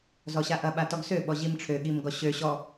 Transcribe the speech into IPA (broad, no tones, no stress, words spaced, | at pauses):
zɔɕaʔɐ ɓatɔɡsø ɓɔʑimʈ͡ʂʰø ɠimɡɔɕø ɕɔ